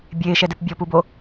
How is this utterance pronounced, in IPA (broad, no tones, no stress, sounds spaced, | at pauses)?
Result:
bʲ eː ʃ ɛ d e p bʲ ɔ p u b o